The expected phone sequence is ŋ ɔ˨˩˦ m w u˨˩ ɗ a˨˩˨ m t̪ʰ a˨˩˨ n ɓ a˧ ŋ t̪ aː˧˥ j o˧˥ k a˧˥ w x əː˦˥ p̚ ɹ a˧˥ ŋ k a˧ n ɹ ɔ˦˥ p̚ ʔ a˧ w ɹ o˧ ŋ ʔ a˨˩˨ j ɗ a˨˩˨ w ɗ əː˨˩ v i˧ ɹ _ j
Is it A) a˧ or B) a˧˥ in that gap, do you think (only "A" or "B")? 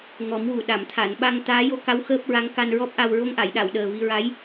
B